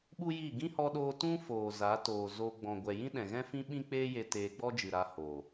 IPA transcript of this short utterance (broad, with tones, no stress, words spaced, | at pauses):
ɓu˦ji˦˨ ɡĩ˦hɔ˧ɗoː˧ tũ˦ foː˨za˨˦toː˨ zo˧ ɡ͡bɔ̃˨ɡʷɛ˨jĩ˦ ɗɛ̃˨ɣɛ̃˦fĩ˦ ɓĩ˦k͡peː˦je˧ teː˧ɡ͡bɔ˦d͡ʒɨ˨ɾa˧ hoː˨